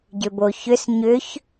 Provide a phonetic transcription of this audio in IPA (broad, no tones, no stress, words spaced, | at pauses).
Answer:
ɟʏboçʏs ɲʏç